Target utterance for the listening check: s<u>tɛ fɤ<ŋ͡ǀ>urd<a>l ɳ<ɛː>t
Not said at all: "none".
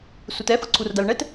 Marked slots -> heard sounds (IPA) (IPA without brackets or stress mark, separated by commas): u, ǀʰ, a, ɛ